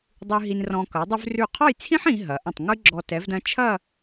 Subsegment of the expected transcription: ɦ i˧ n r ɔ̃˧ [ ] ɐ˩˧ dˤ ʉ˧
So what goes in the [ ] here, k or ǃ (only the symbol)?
k